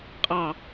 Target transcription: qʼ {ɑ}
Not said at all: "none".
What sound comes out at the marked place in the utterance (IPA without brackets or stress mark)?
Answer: ɑ